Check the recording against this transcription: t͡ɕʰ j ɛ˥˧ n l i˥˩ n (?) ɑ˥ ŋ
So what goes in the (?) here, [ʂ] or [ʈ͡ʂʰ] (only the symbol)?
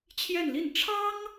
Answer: ʈ͡ʂʰ